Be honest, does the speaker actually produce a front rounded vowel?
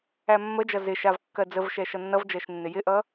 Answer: no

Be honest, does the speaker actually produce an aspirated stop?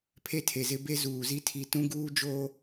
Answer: yes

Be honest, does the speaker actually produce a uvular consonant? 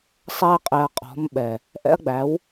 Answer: yes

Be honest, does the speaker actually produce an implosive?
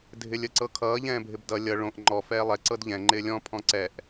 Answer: no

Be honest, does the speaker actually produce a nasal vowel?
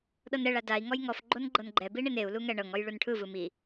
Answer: no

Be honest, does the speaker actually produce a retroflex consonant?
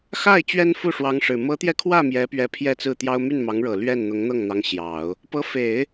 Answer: yes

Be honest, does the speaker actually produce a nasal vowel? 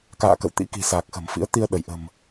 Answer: no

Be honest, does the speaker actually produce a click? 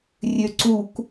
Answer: yes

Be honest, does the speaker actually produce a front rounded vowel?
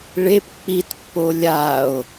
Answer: no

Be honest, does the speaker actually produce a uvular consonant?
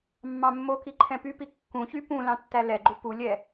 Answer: no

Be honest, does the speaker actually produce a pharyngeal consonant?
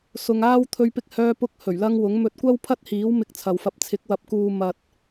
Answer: no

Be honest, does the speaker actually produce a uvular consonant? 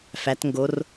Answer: no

